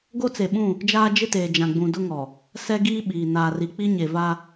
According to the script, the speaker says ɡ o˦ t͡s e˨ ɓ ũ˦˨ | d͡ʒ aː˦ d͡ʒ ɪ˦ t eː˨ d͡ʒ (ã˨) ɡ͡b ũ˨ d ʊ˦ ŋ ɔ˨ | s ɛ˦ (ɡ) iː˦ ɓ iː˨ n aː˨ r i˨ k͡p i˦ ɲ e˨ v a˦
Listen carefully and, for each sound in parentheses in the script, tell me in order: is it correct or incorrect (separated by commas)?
correct, correct